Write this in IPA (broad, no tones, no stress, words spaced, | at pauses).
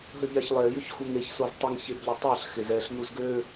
ɦəʎaçlˠe jʏçxuŋeç soztˤəŋ çebʎʏtˤaɬ xɪzɛɬ nuzɡø